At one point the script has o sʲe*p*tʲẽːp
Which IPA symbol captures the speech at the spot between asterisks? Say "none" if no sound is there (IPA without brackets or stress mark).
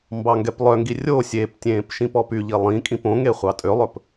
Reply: p